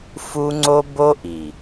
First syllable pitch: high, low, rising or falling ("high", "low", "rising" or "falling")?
high